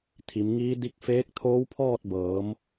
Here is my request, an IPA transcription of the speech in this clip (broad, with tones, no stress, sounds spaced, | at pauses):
t̪ʰ i˩˧ m ŋ iː˧˥ d i˧ k̚ f eː˧˥ k̚ t̪ʰ oː˧˥ w pʰ ɔː˥˨ t̚ b ɤː˩˧ m